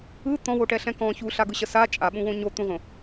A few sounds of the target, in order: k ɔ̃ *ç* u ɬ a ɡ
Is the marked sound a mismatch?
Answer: no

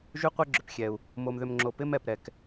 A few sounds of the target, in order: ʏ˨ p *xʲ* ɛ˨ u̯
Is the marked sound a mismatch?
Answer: no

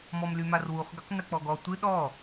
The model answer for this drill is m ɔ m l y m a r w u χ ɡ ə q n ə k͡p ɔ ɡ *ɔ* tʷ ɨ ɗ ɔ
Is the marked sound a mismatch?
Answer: no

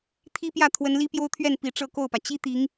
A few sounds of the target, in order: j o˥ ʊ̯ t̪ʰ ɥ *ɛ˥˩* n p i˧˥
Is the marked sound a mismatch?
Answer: no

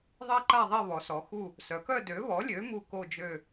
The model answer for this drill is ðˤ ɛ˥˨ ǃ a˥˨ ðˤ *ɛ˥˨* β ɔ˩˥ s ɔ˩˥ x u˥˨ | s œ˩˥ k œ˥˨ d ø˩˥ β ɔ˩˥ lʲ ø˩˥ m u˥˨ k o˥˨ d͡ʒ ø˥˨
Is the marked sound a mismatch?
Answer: no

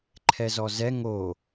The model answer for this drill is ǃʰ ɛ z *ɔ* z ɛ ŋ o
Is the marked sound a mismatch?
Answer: no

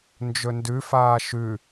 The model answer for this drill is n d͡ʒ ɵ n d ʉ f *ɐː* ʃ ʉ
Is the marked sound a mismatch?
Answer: yes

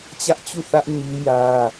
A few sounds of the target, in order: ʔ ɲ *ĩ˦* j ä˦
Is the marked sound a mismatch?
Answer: yes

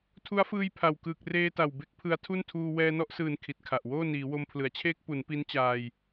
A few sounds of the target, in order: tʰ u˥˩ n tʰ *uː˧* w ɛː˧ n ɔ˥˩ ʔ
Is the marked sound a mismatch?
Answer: no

